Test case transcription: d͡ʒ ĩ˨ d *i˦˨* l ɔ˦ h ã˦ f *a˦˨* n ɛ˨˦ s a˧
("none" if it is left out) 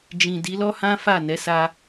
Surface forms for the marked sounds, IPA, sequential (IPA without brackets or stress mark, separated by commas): i˨˦, a˦˨